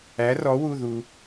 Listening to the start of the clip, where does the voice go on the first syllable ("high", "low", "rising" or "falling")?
rising